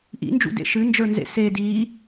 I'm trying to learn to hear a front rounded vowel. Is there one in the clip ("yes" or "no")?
no